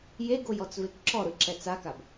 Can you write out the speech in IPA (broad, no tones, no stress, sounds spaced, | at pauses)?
j e ɡ o j ɔ t͡s v e k ǁ ɔ ɾ ɯ ǁ ɛ t͡s a k a b